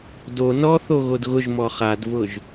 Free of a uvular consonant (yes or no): no